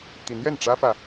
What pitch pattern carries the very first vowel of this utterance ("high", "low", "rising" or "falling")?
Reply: rising